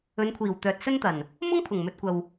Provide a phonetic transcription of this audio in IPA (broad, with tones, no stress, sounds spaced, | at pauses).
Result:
ɵ˨˧ n kʷʰ iː˨˩ w t̪ œː˨ t̚ s ɵ˥ n t̪ ɐ˨˩ n | m ʊ˥ ŋ pʰ ʊ˨˩ ŋ m ɵ˨ t̚ kʷ ɐ˨ w